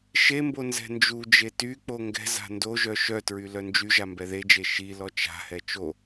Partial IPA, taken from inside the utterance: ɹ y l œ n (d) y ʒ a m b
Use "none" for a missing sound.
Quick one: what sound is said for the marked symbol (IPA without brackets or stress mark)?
d͡ʒ